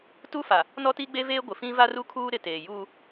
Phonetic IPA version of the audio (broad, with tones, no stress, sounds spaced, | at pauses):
t u˦ f a˨ | n ɔ˦ t i˦ ɡ͡b e˦ v eː˦ ɡʷ ɪ˨ f ĩ˦ v a˦ r u˦ kʰ uː˦ ɾ ɪ˨ t eː˨ j uː˦